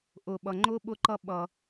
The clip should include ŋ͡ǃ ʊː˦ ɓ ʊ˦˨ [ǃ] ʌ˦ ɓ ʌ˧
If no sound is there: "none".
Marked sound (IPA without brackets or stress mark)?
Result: ǃ